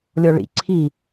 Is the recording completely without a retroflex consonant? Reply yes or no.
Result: no